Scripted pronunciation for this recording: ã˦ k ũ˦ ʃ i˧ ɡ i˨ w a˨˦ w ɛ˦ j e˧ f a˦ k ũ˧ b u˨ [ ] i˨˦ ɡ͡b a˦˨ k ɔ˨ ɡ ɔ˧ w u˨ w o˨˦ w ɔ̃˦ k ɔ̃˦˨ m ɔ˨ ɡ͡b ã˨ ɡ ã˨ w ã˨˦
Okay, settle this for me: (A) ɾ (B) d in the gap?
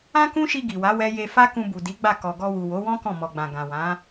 B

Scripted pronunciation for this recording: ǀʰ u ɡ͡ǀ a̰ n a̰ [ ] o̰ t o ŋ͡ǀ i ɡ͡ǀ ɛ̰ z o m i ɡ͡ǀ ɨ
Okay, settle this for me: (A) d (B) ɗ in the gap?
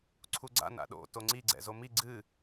B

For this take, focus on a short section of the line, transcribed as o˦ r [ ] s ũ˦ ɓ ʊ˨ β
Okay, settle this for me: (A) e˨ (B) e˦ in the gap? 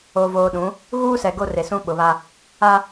A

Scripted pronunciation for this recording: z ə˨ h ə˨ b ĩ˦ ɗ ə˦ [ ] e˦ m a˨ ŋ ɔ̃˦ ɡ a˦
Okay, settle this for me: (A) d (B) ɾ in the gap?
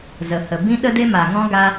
A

